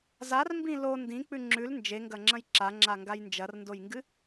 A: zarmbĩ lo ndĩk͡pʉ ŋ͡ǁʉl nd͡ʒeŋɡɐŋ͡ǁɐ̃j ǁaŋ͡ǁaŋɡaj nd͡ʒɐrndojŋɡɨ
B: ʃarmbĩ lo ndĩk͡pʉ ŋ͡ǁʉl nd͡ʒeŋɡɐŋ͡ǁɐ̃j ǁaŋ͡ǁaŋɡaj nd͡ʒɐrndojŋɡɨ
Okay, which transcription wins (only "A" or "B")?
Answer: A